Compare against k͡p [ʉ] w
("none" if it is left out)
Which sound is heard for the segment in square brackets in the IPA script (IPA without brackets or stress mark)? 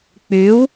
ʉ